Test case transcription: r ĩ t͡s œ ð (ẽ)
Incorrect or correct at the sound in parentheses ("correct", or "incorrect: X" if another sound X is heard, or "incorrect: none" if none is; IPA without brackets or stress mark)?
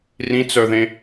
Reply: correct